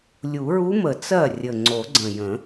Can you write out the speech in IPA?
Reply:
lʲu˨˩˦ɹu˧˥mə˨˩˦ t͡sɜ˥˩rʲə˨˩ ŋ͡ǀo˨˩˦ɡ͡ǀə̃˨˩jə̃˨˩˦

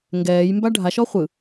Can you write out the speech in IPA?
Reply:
ŋɡɛːjmba ɖʱaʃɔ χʷɯ

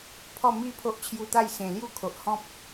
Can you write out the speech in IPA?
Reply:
pʰɔ˥˧ mi˥˧ pʰo˦ʔt͡ɕʰju˧t̪a˥˧j sẽ˨˩ lju˥˧kʰo˨ʔhɔ̃˦p̚

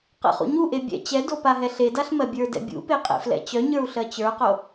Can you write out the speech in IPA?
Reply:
qɛ̰χṵɲuʔe bʲɛ̰ t͡ɕɛdo paɦɛɬedaɬ mɜbʲə˞dɛ̰ bʲṵpe qʼḛflɛ̰t͡ɕœɲə˞u̯ ɬɜt͡ɕə˞qo

